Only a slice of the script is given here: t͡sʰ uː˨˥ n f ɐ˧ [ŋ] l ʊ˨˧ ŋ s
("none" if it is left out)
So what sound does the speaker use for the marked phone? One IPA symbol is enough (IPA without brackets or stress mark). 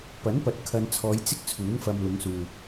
m